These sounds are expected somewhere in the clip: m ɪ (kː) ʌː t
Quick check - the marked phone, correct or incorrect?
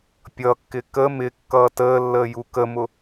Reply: correct